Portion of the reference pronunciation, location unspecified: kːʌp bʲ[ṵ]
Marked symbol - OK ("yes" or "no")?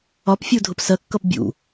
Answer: yes